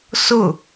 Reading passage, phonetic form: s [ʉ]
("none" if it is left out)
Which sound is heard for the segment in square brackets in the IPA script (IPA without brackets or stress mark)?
ʊ